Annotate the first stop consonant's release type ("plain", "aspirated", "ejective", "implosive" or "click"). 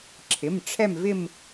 click